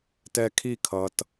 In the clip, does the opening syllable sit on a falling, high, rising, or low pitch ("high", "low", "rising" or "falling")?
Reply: high